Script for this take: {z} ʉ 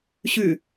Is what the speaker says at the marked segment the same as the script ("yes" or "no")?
no